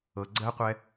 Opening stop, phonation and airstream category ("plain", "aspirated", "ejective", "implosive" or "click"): click